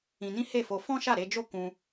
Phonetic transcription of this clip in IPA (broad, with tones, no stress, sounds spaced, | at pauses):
ĩ˧ n ĩ˦ h e˦˨ f o˧ f ɔ̃˦ ʃ a˦˨ ɾ e˧ d͡ʒ o˦ k ũ˧